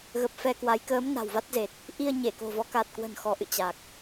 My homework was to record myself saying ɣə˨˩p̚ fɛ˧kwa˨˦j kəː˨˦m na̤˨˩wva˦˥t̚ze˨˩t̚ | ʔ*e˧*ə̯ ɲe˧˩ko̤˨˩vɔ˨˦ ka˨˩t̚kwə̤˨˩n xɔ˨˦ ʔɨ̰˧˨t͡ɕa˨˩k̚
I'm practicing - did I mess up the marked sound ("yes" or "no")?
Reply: yes